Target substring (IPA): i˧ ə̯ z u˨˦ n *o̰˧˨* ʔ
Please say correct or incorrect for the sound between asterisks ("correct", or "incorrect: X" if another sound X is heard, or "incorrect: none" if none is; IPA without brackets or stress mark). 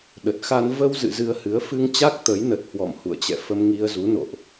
correct